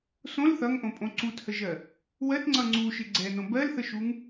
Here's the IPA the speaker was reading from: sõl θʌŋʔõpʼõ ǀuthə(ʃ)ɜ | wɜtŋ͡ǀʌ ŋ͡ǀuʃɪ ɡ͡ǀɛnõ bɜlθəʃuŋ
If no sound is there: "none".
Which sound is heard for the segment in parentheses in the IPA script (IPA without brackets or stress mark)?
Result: ʒ